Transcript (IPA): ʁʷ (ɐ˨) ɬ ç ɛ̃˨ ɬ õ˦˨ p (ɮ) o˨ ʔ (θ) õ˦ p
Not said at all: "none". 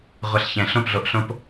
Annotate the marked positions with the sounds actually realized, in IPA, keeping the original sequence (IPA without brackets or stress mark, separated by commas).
ɐ˨, ɮ, ɬ